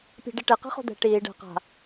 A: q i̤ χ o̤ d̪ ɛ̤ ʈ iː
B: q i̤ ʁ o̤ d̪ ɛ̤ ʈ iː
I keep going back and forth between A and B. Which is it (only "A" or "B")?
A